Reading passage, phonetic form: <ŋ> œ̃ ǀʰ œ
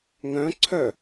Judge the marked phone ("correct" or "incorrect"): correct